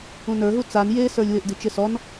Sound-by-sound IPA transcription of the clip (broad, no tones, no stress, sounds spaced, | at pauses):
ũ n ə˞ ɦ u t͡s a n j e s ə˞ lʲ w ɪ ʔ d i t͡ʃ ɪ s ɔ n